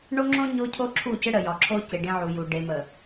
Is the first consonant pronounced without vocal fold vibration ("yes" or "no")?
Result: no